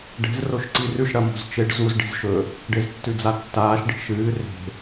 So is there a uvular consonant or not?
no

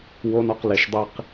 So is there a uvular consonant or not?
yes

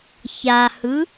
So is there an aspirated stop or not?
no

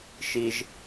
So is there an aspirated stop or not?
no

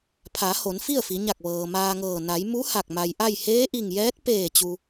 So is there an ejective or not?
no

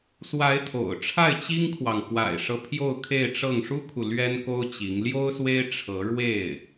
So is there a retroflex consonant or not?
yes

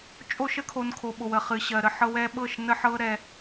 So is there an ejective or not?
yes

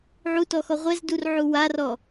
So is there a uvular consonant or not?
yes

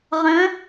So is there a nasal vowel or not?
yes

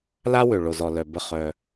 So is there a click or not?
no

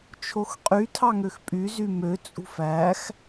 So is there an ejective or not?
yes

